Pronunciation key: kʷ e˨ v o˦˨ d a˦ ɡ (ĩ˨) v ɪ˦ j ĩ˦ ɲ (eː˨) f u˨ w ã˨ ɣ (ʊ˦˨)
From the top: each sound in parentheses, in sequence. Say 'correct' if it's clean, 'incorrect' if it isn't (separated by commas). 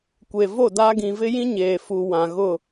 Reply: correct, correct, correct